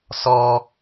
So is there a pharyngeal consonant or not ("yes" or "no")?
no